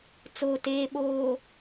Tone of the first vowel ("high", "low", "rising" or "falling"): low